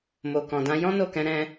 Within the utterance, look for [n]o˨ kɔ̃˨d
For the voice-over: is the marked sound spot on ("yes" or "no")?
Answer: no